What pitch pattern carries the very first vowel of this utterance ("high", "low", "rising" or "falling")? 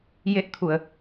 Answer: rising